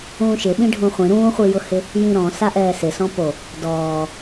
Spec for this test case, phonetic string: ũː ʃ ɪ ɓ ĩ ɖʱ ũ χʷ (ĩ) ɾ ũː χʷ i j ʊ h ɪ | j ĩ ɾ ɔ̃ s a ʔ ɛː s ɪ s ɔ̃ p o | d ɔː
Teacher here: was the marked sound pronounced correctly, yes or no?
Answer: yes